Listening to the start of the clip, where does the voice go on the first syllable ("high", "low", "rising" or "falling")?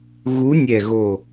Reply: rising